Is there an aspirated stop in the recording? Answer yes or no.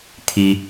yes